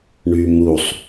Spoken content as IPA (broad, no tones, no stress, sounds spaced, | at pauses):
ɳ y m u sˤ